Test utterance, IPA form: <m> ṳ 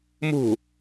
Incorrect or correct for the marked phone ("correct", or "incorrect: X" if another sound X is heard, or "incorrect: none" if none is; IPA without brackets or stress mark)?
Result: correct